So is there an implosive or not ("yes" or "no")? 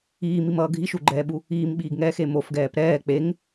yes